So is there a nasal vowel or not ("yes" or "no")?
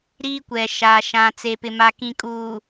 yes